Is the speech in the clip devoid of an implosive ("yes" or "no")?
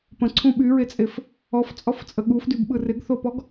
no